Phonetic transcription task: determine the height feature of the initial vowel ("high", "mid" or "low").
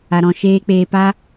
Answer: low